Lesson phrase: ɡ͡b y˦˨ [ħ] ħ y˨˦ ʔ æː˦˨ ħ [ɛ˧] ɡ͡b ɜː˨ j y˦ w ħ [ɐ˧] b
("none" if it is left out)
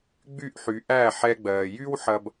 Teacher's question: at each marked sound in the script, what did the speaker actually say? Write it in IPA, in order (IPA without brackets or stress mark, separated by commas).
ʔ, ɛ˧, ɐ˧